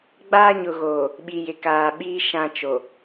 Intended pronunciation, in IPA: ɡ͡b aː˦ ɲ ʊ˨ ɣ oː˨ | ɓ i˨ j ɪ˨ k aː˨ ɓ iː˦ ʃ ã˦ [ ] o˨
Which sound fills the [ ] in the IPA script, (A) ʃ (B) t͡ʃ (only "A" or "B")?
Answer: B